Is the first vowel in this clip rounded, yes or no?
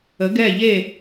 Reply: no